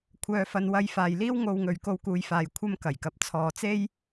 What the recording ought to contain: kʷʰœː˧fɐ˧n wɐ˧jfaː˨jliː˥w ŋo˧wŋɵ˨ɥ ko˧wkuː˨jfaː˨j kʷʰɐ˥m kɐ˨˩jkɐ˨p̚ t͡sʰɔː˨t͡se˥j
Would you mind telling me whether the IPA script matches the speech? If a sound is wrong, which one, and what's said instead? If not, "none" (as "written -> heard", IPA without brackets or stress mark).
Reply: none